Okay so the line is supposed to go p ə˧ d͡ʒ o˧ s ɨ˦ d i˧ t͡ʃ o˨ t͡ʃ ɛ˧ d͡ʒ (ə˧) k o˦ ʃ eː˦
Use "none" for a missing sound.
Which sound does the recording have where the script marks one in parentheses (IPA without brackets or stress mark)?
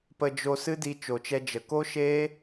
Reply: ə˨